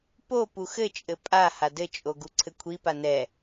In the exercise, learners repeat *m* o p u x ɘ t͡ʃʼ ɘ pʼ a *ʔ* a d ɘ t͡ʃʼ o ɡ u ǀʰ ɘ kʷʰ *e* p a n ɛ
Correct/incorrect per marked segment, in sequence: incorrect: p, incorrect: h, incorrect: i

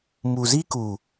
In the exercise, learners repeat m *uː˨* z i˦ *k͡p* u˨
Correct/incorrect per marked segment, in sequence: incorrect: u˨, incorrect: k

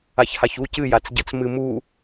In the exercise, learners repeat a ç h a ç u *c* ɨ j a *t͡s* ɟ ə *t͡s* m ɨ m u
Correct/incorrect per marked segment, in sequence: correct, correct, correct

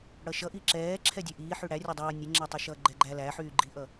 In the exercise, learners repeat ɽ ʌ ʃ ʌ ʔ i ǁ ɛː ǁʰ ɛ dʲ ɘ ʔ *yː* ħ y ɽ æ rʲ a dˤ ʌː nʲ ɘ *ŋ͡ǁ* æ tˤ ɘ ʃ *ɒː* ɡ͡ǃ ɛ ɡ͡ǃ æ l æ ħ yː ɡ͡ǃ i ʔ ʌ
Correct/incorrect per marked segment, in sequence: incorrect: iː, correct, incorrect: ʌː

